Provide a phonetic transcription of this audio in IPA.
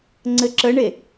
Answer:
ŋ͡ǀ ɘ ǁ ə ɳ e

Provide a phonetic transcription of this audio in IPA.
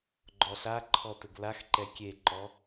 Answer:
ɡ͡ǃ ɔ ɬ a ǃʰ ɔ t ɘ ɡ l a x ǃ ɛ kʲ e ǃ ɔ

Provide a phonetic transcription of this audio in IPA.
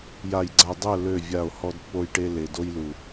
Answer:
j a˨ j ɡ͡ǀ a˨ dˤ œ˦˨ l ø˦˨ vʲ a˦˨ o̯ h ɔ˦ d pː o˦ j ʈ e˦ l e˨ d o˦ j l u˨

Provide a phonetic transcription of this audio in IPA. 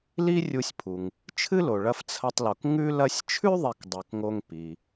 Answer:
l i˦ rʲ u˨ sʲ pʰ u˩ ŋ | t͡ʃʰ ɨ˥ l o˩ ɭ ɐ˦ f t͡sʰ ɐ˦ tˤ l o˨ k ŋ ʉ˦ l ɐ˦ sʲ t͡ʃʰ ʉ˥ ðˤ e˨ k dˤ ʉ˩ k ŋ o˨ ŋ p i˩

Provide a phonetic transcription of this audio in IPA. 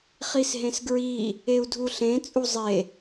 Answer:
χ i s ɦ ẽ s ɡ ɹ i | e u̯ dʱ u ɬ ẽ t͡sʼ u zˤ e

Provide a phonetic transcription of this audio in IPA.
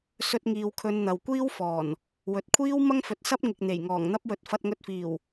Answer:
s ɵ˧ t̚ ŋ iː˨ w kʰ ɵ˨˧ n n̪ ɐ˨ w kʷ iː˥ w f ɔː˨˩ n | w ɵ˨ t̚ kʷʰ iː˥ w m ɐ˥ ŋ f ɵ˨ t̚ s ɐ˥ p̚ ŋ ɪ˨ k̚ n̪ e˨˩ j ŋ ɔː˨˩ ŋ n̪ ɐ˥ p̚ w ɵ˧ t̚ f ɐ˧ t̚ ŋ ɵ˧ t̚ f iː˨˩ w

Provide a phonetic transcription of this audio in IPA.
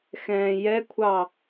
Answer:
x ɛ̃ː j ɛ kʷʰ ɑ

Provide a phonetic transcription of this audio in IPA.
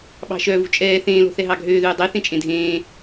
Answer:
ɓ ɑ̤ ʃ œ v ṳ t͡ʃʼ ɛː θ ẽː l o̤ θ ɛ ɦ ɑ ɡʱ øː ð ʉː dˤ e θ ẽ t͡ʃʼ ẽ dʱ ẽː

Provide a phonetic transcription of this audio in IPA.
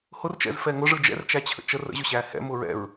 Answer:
h ʊ r t͡ʃ ɛ̰ z f ɛ ŋ ʊ ʐ ɯ d͡ʒ ɛ̰ r t͡ʃ æ t͡ɕʰ ə̰ t͡ʃ ə r ə̰ ʑ ʊ ɕ æ h ɛ̰ m ʊ ɹ ɛ̰ ɹ

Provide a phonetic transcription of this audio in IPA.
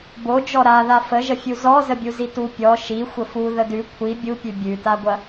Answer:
b o d͡ʒ ɔ ɾ a ð a f ə ʒ ə fʲ u z ɔ z ə bʲ u z i t u pʲ ɔ ʃ i xʷ ə f u ð ə d ʉ kʷʰ i bʲ u pʲ ʉ bʲ ʉ t a ɡʷ ɐ

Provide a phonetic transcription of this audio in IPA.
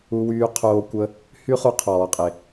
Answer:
u˧ w yː˧ qʰ oː˧ kʷ ə˧ | h y˦ χ u˧ qʰ ɔː˨ qʼ e˨

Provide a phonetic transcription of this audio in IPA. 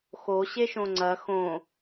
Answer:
x o ɕ e ʃ õ ŋ͡ǀ ɐ x õ

